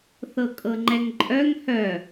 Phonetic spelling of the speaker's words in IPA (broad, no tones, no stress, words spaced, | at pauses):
θɤkʼɤŋ͡ǃɛŋǃʼœŋ hœ